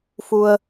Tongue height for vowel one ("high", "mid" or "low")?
high